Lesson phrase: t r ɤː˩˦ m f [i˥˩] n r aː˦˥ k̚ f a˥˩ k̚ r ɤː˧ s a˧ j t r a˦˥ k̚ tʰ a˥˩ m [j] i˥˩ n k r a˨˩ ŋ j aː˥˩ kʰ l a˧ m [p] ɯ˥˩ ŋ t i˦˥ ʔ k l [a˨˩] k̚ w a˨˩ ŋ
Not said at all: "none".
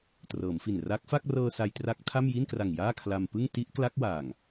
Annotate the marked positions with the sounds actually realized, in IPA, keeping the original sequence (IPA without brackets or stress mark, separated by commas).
i˨˩, j, p, a˦˥